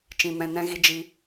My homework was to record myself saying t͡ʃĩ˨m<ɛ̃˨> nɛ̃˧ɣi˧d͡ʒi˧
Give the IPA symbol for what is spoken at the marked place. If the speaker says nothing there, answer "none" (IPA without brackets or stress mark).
ɛ̃˨